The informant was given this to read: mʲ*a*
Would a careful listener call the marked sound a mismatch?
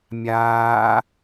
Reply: yes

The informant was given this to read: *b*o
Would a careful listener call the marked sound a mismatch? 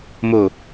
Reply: yes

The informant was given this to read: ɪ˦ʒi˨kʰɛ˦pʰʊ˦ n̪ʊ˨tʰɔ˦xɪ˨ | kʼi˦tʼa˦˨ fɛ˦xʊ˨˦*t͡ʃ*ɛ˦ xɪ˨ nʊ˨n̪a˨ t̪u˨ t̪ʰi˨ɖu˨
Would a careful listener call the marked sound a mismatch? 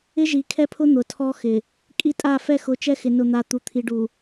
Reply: no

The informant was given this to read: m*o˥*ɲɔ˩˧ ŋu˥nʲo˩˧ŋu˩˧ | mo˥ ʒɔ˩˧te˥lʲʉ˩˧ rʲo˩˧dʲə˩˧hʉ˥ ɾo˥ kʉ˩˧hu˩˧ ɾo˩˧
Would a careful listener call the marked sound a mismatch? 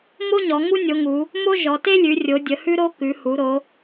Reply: no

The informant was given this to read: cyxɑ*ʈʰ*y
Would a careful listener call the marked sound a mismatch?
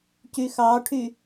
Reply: no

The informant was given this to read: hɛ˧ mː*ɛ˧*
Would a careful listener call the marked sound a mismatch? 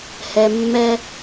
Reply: no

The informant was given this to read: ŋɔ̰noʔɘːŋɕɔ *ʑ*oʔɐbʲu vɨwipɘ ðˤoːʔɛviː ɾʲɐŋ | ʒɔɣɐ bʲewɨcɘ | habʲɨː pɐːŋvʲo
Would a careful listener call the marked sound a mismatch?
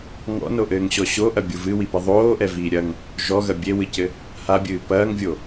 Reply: yes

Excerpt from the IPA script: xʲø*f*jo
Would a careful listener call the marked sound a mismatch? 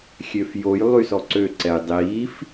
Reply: no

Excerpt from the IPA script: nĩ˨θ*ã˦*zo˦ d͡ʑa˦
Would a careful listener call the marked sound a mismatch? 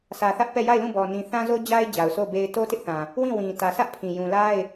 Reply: no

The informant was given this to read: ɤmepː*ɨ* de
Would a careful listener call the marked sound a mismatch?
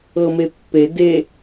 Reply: yes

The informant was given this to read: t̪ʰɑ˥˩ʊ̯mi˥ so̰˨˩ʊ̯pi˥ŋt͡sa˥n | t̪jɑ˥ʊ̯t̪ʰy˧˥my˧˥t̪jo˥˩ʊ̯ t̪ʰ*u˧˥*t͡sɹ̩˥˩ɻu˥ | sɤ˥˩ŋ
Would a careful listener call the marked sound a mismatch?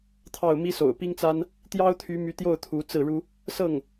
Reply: no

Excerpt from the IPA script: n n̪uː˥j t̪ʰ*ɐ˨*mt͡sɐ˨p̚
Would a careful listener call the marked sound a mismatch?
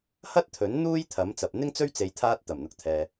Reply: yes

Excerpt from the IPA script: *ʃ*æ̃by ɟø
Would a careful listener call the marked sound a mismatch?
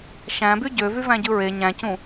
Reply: no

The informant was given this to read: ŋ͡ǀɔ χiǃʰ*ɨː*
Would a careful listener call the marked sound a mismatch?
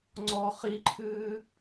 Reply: no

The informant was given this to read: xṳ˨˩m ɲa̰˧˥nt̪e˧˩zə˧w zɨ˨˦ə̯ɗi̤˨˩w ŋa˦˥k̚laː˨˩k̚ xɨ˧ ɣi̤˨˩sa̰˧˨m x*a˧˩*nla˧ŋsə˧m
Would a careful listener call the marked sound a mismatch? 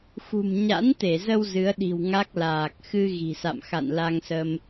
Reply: yes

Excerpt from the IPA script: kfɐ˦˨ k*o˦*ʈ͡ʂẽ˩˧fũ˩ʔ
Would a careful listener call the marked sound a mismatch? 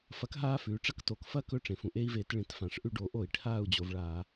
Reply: yes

